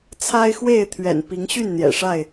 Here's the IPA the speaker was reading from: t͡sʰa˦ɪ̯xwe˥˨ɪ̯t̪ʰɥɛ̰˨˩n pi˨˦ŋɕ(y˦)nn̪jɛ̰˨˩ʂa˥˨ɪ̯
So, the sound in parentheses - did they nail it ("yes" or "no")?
no